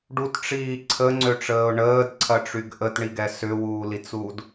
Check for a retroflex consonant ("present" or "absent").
present